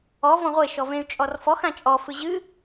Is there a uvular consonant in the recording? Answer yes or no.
yes